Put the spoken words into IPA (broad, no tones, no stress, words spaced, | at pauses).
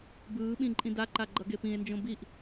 bɯːɓĩ ǃʼĩdaǃa ɡ͡ǃʌɡepĩe̯nd͡ʒõ biʔ